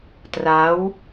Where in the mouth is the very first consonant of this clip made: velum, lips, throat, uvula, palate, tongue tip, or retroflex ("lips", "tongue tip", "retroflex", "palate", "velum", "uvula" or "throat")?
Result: tongue tip